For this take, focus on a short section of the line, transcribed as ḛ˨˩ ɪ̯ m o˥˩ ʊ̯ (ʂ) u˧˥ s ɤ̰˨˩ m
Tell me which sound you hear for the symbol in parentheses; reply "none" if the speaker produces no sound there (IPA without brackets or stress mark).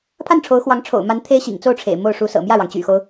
ʂ